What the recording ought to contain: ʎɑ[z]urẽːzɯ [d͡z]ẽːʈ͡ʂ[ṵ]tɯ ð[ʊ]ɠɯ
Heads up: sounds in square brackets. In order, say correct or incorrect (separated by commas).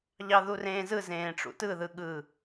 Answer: incorrect, incorrect, correct, incorrect